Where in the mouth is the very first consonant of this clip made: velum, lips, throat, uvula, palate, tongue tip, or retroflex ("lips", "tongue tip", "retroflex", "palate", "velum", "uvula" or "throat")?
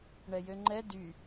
retroflex